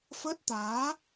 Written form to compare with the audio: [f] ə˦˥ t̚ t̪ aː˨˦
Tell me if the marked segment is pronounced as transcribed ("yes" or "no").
yes